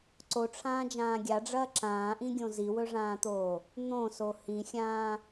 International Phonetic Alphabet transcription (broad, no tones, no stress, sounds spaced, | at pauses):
ǀ o ʈ͡ʂʰ ãː d͡ʒ ãː ɡʲ a ɖ͡ʐ ɐː ǁ ãː ʔ ĩ ɡʲ õ z i w ɵ ʐ ãː t̪ oː | n̪ õ s o h ĩ xʲ ãː